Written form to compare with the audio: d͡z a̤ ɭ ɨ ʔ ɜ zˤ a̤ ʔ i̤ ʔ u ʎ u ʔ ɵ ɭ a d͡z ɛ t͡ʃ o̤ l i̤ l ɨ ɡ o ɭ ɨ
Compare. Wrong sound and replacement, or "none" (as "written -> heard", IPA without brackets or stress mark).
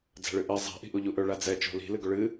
none